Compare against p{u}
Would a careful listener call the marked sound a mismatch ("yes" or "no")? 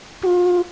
yes